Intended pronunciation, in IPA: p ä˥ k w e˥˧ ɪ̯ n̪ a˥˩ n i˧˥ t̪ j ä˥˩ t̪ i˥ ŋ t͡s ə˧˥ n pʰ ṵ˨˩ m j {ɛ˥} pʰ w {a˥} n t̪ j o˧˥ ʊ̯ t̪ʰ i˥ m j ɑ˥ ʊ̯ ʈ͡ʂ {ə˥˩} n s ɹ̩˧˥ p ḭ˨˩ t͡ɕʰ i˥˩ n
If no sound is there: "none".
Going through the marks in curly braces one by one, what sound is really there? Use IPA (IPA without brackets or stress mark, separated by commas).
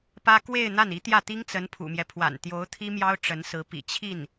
ɛ˦, a̰˨˩, ə˧˥